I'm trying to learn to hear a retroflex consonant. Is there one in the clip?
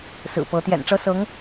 yes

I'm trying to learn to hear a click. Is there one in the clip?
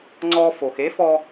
yes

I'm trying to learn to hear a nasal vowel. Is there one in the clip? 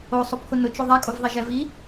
no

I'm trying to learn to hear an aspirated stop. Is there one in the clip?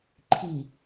yes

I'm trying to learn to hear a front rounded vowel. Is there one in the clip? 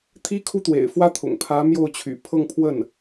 yes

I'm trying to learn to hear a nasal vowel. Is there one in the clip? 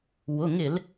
no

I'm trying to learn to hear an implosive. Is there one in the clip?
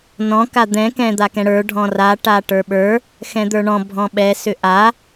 yes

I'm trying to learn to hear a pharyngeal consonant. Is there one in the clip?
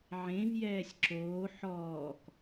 yes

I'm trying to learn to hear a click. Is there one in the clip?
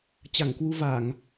no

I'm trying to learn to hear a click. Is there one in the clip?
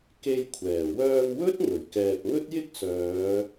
no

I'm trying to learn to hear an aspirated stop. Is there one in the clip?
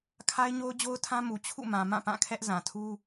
yes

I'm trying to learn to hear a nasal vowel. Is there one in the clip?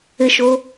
no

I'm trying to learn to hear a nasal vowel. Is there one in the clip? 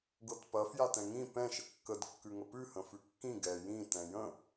yes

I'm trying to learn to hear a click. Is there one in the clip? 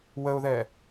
no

